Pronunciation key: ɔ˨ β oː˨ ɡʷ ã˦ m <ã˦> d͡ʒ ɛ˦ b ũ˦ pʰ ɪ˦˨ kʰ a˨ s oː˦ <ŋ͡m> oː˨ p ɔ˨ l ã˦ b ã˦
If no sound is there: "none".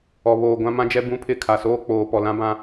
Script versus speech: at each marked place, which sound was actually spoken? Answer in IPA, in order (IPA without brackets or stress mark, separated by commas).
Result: ã˦, k͡p